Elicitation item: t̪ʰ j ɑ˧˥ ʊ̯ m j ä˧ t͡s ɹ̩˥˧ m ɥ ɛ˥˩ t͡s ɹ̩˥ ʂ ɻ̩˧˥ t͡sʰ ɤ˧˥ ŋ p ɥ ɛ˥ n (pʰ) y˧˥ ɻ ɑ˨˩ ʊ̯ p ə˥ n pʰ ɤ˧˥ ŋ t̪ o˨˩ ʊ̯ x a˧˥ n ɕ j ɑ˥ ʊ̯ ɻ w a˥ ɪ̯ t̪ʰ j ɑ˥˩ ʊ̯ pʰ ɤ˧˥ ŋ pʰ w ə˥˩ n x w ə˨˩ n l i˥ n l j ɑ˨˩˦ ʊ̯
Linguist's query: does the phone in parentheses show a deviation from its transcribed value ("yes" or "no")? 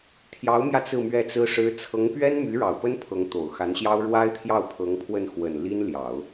yes